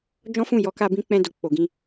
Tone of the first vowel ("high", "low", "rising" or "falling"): high